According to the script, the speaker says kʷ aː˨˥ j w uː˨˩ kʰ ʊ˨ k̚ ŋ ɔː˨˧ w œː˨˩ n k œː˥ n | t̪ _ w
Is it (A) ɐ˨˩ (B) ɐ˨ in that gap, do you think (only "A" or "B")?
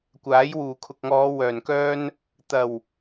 A